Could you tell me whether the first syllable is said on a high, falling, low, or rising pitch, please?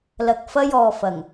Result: low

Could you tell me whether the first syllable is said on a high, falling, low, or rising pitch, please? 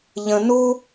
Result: high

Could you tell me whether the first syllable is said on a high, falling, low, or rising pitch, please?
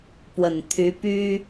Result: low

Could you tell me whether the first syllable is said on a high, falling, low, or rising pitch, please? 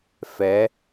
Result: rising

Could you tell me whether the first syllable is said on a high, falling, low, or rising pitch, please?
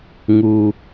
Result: low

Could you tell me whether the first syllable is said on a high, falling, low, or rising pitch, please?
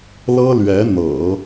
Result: high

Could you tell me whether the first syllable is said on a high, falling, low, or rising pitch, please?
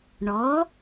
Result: rising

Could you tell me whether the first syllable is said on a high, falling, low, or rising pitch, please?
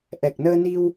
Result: low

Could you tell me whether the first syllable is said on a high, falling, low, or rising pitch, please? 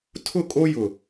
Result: falling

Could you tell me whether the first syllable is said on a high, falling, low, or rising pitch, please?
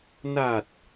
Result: low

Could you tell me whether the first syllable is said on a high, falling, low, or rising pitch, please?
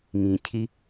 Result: low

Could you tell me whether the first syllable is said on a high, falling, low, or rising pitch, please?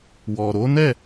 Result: low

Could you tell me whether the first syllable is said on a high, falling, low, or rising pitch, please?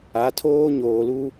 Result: rising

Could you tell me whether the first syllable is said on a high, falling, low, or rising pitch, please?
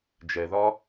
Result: low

